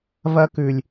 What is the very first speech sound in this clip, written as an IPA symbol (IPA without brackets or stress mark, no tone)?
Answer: v